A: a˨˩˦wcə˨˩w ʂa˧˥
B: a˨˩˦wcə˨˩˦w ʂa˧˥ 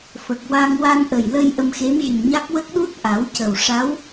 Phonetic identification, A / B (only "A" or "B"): A